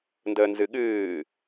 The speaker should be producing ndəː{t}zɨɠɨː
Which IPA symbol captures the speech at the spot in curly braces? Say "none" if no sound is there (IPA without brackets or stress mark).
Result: n